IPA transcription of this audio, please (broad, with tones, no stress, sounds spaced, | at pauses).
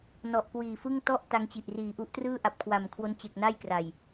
n ɔ˨˩ ʔ k w iː˨˩ f ɯ˥˩ ŋ t ɔ˥˩ ʔ t a˦˥ ŋ t͡ɕ i˨˩ ʔ r iː˨˩ ʔ u˦˥ ʔ t r ɯː˥˩ ʔ a˨˩ p̚ kʰ w a˨˩ m kʰ w o˦˥ n t͡ɕ e˨˩ k̚ n a˥˩ j k r a˨˩ j